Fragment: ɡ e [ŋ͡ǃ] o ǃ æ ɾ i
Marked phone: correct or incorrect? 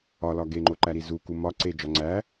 correct